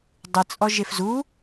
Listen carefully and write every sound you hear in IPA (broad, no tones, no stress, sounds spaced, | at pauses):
dˤ ɨ t͡sʼ ɔ ʒ e f z u